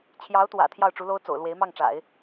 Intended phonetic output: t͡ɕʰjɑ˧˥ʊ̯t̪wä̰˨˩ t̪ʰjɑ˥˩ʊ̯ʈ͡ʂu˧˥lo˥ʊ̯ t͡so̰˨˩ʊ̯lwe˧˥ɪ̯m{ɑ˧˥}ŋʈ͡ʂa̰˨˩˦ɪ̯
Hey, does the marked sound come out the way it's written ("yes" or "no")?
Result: no